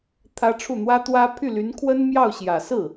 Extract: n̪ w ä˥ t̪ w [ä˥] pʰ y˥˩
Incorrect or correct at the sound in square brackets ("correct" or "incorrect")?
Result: correct